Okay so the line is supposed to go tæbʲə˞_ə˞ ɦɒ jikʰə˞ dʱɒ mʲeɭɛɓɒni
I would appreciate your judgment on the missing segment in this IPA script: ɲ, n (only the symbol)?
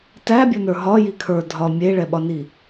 n